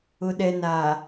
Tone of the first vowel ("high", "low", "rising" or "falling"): low